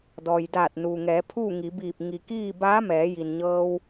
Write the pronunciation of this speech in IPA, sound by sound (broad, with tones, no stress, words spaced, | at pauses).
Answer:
dɔː˩jdaː˧˩t̚nuː˩ŋɛː˩˧ pʰuː˥˨ŋi˩˧biː˧˩p̚ ŋi˩kiː˥˨ baː˧˥mɛː˩˧ji˩n ɲɤː˧w